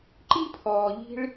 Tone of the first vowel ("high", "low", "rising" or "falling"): high